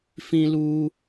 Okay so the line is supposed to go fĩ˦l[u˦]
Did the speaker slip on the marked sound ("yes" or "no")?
no